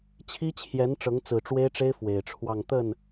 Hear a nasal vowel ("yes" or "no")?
no